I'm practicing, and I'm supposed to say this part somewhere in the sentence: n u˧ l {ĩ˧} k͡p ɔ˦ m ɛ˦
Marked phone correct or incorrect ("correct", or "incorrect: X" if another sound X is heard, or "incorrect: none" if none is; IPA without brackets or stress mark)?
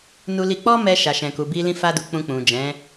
incorrect: i˧